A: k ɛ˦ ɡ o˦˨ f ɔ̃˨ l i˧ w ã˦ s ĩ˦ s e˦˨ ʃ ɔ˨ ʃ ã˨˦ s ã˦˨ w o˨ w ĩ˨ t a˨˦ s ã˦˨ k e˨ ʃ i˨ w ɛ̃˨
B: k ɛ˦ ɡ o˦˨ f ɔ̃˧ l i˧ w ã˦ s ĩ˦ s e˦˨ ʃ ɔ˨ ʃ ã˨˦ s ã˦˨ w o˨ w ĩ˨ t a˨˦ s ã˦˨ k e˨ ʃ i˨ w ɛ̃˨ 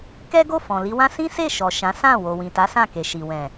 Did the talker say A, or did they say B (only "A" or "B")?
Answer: A